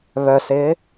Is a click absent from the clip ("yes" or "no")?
yes